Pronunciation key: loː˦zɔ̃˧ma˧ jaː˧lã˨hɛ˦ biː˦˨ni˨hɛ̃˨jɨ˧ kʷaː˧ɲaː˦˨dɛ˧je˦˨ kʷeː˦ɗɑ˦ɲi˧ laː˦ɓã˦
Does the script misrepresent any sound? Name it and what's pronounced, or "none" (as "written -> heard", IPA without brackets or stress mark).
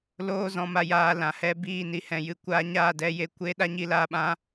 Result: ɑ˦ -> a˦